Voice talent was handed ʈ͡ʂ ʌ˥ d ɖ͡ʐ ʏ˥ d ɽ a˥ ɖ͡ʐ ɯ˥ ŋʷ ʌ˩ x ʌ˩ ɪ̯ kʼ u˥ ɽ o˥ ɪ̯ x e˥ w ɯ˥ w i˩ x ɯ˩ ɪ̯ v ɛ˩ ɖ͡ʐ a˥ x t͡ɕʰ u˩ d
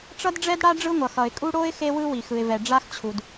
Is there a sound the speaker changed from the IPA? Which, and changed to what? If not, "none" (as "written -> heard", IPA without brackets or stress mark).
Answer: ʏ˥ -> ɛ˥